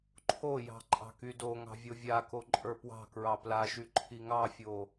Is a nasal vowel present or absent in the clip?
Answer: absent